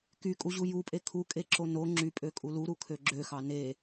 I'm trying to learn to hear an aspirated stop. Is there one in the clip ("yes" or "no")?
yes